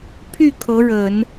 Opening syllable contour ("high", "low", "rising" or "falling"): falling